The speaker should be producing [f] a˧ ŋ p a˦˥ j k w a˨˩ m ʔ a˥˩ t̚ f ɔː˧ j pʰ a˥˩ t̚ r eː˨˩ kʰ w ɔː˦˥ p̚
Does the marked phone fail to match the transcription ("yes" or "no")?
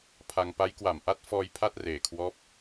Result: yes